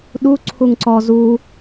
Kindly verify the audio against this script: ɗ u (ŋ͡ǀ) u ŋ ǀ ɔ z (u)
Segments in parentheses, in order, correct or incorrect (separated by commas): incorrect, correct